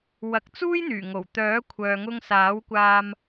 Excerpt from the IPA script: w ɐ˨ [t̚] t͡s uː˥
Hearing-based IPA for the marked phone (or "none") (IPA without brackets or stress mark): k̚